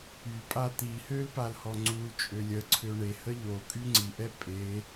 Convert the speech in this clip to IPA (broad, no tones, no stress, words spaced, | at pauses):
ypʼa t̪ihøl palhɔŋ͡ǀult͡ʃʼø lʲəǀʰø ɳe həʎokʼy ŋ͡ǀiʔɛ pʼe